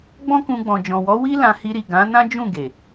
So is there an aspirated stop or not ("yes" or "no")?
no